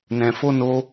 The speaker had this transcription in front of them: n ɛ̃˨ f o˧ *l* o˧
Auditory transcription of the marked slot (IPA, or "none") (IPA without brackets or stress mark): n